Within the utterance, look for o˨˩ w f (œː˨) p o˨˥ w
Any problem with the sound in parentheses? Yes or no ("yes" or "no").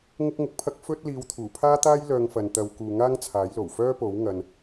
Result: yes